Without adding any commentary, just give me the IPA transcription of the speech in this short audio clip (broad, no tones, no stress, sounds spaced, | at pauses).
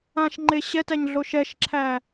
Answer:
ã ʃ ŋ͡ǃ e ɕ ɛ t æ ɲ ɮ o ʃ ɛ ʃ ǁʰ æ